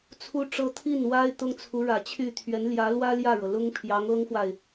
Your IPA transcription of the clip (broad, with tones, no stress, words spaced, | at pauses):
t͡sʰu˥ʈ͡ʂɤ˥ t̪ʰi˥˩nwa˥ɪ̯ t̪ʊ˥ŋt͡sʰu˧˥ɻä˨˩t͡ɕʰy˥˩ t̪ʰɥɛ˧˥nljä˧˥ lwä˥ ljä˥˩ɻɤ˩ lʊ˥ŋ pʰjɑ˧˥ŋɤ˥ŋxwa˨ɪ̯